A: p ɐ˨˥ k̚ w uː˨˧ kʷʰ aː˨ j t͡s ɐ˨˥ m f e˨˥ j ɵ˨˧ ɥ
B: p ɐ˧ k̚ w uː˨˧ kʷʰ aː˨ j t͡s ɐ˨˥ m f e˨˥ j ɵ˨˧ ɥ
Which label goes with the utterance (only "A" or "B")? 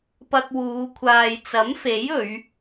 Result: B